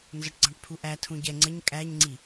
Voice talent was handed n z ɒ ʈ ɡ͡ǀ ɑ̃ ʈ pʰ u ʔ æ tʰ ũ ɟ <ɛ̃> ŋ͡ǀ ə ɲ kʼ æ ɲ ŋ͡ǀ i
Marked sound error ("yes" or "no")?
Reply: yes